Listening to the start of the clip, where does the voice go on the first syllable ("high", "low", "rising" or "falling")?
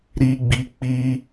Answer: high